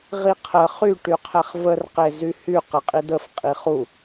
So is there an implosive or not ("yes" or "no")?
no